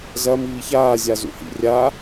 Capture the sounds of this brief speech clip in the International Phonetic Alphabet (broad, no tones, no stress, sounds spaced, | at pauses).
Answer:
z ɐ m iː ç aː zʲ a z ṵ h ḭ rʲ a